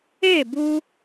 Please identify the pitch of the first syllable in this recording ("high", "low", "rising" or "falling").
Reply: falling